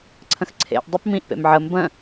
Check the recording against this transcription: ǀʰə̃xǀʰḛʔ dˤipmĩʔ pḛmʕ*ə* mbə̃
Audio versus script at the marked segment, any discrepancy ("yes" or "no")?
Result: no